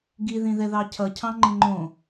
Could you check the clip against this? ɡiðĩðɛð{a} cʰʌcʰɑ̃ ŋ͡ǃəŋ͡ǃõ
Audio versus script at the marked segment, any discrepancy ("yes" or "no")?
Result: yes